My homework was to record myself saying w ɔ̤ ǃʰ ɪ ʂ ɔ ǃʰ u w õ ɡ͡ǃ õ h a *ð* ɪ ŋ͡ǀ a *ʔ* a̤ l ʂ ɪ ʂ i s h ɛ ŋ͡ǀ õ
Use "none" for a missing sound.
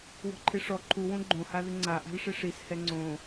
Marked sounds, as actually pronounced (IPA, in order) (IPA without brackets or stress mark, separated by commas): ð, ʔ